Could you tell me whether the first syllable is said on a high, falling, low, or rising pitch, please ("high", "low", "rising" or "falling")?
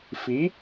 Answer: rising